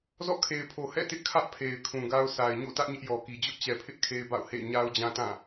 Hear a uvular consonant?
no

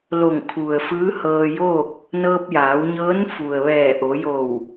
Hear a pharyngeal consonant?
no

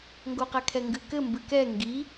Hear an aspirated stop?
yes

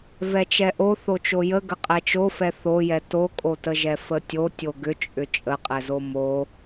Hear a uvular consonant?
yes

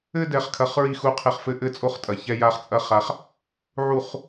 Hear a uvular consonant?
yes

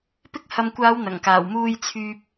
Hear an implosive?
no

